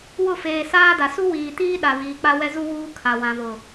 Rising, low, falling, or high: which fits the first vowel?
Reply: falling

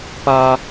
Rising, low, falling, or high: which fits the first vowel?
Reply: high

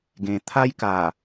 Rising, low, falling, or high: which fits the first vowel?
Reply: low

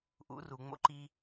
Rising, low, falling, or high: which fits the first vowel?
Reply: rising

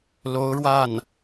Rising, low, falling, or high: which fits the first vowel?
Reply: rising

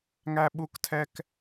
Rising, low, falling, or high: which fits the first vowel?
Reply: high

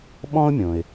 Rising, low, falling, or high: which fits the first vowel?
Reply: high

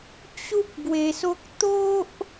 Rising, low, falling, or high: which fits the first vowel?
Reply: high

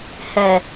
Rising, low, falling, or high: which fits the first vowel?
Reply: low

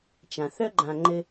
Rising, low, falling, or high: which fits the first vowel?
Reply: low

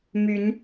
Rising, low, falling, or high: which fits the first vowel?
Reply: rising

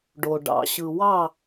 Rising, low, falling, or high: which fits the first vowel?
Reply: low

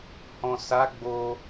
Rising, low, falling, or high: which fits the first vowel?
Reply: low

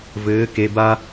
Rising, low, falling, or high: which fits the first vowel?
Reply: rising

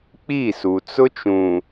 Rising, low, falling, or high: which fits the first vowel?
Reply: falling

